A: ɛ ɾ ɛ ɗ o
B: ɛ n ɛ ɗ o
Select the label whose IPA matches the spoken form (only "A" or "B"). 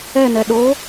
B